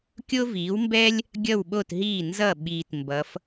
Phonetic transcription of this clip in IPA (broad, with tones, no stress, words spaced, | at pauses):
kʲo˥viː˩˥wmbɛː˥lʲ | ɡʲʌ˥˩wɓo˥˩t ɦiː˥˩ nzʌ˥˩ ɓiː˧tmbʌ˩˥f